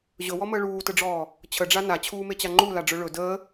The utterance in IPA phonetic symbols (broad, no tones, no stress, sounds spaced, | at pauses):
ʑ ɵ w ɔ m əː ɭ uː t ə ɖ͡ʐ ɔː | t͡ɕʰ ə ɖ͡ʐ a n a t͡ɕʰ uː m e t͡ɕ a ŋ͡ǃ u l a ɖ͡ʐ ɵ ɭ ɵ d əː